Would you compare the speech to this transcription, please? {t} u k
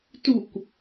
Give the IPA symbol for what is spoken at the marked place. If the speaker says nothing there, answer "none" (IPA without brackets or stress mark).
t